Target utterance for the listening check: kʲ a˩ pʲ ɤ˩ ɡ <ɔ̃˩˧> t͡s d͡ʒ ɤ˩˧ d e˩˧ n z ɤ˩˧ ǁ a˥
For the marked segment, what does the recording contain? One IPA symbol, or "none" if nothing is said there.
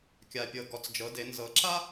ɔ˩˧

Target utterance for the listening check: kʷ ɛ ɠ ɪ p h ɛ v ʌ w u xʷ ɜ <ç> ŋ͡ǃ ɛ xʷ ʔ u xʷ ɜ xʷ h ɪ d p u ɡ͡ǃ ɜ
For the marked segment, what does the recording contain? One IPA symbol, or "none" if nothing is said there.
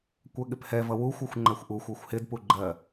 xʷ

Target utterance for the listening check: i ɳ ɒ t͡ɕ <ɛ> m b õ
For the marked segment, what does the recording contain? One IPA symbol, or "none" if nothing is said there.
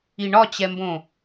ɛ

